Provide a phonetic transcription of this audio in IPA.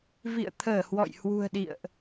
v ḭ˧˨ ə̯ t̪ʰ əː˧˩ h w ɔ̰˧˨ j h w ṳ˨˩ ə̯ ɗ ḭ˧˨ ə̯ ʔ

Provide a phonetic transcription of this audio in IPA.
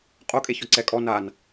qʼ o kʼ e ç ɔ ǀ ɛ kʼ ɔ n a n

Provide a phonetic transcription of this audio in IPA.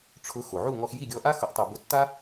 ʈ͡ʂʰ ʊ˩˥ x o˩ ʕ u˥˩ ŋ ɔ˧ x j i˥˩ ɡʲ ɔ˧ ʔ a˥ x ʊ˩˥ ʔ tˤ u˩ b ʊ˧ tː a˥

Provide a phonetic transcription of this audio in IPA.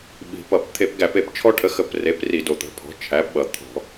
ɓ i̤˨˩ p ʌ˧˩˧ p t̪ʰ e˧˩˧ p ɡ æ˧˩˧ p e˨˩ p t͡ʃʰ ɔ˦ ʈʰ ə˩˥ x ə˨˩ p r e˩˥ p r i˧˩˧ d o˨˩ t̪ ə̤˩˥ pʰ ɔ̤˩˥ t͡ʃʰ æ˩˥ p ɓ ʌ˨˩ t̪ʰ ɔ̤˧˩˧

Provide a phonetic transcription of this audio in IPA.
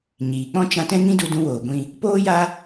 ɲ iː˨ k͡p ɔ̃˦ t͡ʃ ã˧ t ɛ̃˦ ŋ ĩ˦ d u˧ d ũ˧ w oː˨ ɡʷ ĩ˧ | p oː˦ j a˦

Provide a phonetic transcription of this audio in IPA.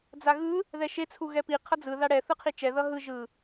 d͡z a ɣ ɯ | ð ɛ ʃ e t͡sʰ u ɣ ɛ p i qʰ ʌ d͡z ɯ ð a ɽ ɛ θ ɯ qʰ i t͡ʃ ɛ ð ʌ ɦ ɯ ʒ ɯ

